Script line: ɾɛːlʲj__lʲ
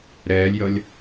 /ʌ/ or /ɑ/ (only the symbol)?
ʌ